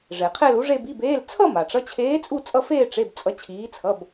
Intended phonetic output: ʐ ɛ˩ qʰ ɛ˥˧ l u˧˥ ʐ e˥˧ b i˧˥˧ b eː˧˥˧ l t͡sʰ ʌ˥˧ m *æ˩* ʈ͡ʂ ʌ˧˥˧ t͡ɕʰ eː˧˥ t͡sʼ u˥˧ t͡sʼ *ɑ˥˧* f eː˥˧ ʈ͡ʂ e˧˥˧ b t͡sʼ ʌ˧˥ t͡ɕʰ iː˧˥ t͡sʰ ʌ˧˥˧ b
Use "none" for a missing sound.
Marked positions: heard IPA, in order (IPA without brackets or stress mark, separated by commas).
a˩, ʌ˥˧